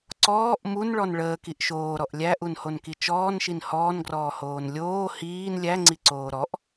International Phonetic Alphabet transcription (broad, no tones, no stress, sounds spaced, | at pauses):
ǀ ɔː ʔ m u n ɭ ɔ n ɭ əː k i ʔ ʃ oː ɾ ɔ ʔ lʲ æ ʔ u n h o n k i t͡ʃ ɔː n ʃ i n h ɔː n ɡ r ɔː h oː n lʲ oː h iː n lʲ æ ŋ͡ǀ i ǀ oː ɾ ɔ ʔ